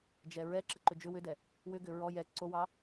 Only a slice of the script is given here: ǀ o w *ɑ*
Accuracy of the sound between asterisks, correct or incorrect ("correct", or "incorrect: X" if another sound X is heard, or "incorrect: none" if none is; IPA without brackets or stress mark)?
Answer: correct